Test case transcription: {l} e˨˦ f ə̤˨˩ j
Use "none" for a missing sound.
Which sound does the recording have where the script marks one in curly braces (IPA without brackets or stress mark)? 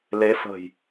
l